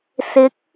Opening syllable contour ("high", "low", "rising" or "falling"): rising